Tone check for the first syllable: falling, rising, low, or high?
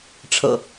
low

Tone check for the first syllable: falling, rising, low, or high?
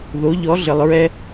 rising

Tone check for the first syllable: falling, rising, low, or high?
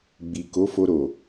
low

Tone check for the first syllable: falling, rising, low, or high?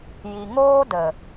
low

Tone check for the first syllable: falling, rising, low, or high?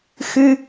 high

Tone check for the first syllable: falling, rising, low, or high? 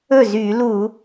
falling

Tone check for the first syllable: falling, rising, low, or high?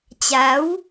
rising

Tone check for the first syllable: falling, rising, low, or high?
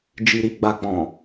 low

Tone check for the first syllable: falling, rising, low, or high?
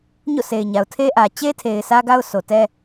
falling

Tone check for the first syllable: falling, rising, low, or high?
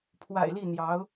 low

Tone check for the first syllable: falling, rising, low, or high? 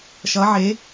rising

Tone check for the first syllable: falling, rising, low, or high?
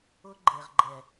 high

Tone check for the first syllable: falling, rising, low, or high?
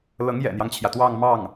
rising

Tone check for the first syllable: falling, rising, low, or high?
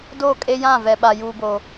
falling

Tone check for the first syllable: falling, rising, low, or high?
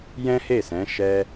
high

